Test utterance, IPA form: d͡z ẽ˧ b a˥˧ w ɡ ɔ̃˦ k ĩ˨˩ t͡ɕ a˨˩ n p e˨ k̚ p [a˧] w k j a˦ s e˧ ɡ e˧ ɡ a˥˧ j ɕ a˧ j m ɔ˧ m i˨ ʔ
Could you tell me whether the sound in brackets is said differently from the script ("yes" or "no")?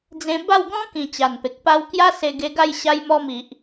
no